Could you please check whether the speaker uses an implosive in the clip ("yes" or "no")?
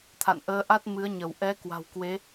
no